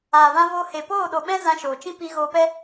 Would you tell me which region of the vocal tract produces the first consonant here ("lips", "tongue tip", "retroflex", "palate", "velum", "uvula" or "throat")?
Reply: lips